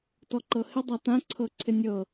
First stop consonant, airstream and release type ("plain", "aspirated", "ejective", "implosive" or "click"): plain